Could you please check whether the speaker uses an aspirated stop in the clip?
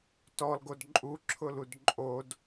yes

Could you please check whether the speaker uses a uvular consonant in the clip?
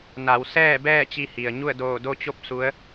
no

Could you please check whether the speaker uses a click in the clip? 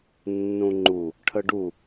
yes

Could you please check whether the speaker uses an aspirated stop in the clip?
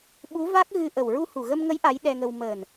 no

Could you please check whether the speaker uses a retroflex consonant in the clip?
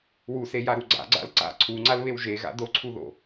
no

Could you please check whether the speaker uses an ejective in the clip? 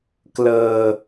no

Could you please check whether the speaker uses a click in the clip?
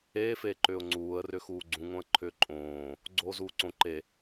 yes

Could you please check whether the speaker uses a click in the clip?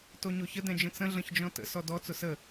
no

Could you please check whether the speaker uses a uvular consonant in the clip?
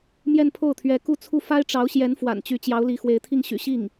no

